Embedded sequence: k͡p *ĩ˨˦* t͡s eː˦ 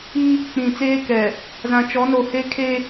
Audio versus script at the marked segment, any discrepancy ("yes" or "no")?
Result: yes